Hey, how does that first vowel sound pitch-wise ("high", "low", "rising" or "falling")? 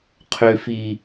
low